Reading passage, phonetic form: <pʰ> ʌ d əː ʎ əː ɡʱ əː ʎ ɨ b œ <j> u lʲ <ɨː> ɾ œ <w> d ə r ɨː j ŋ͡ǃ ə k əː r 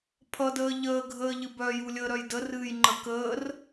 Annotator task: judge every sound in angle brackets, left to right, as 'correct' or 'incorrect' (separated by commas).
correct, correct, incorrect, incorrect